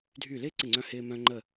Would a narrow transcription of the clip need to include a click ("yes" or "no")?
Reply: yes